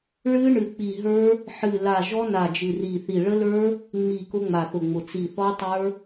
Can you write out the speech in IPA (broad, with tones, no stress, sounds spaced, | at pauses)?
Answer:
ɭ ɨ˦˥ ɳ ɨ˧˩ k͡p i˧˩ ɦ ə˞˦˥ | ħ ɨ˧˩ l a˧˩ ʒ ɔ˦˥ n a˧˩ d͡ʒ ɨ˧˩ r i˧˩ θ i˧˩ ɭ ə˦˥ l ə˞˦˥ | ŋ͡m i˧˩ k ʊ˦˥ ŋ͡m a˧˩ θ ʊ˧˩ ŋ͡m ʊ˧˩ t͡s i˧˩ θ ɔ˦˥ tˤ ə˞˦˥